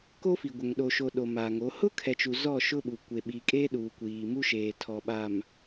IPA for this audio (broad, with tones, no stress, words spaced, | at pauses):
ko˦fi˨ɡʷɛ˨ŋ ɗo˨ʃo˨ ɗo˨ma˨ŋo˨˦ hʊ˦kʰɛ˨t͡ʃu˨ zɔ˦˨ʃʊ˦ɓu˨ kʷe˨ɓi˨kʼeː˦ ɗuː˨kʷiː˨mu˦ʃeː˨ tʰɔ˨ɓaː˨m